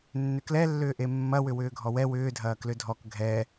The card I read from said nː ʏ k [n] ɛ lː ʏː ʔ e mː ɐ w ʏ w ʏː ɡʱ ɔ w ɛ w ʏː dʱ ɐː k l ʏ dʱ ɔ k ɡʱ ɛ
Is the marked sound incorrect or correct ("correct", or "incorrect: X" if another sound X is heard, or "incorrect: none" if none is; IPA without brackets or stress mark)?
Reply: incorrect: l